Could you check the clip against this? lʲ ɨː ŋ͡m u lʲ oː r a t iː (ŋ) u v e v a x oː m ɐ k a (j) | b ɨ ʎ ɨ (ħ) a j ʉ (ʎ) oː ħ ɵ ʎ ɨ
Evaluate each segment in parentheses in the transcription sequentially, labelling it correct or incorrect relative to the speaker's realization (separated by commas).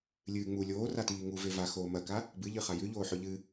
correct, incorrect, incorrect, correct